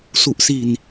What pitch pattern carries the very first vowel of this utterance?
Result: low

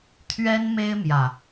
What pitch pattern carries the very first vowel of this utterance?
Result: high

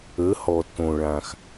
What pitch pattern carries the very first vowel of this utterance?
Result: rising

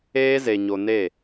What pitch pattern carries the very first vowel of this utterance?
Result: high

